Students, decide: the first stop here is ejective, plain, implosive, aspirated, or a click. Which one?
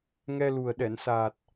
implosive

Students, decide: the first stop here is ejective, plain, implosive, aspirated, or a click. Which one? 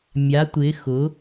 plain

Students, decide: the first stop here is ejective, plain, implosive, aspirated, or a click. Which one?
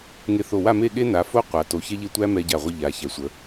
implosive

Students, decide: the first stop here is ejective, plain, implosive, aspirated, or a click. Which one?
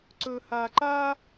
click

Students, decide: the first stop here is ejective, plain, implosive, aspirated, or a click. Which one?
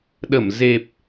implosive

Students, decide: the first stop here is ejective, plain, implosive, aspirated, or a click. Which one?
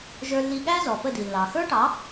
implosive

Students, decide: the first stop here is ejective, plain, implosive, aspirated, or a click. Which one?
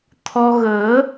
aspirated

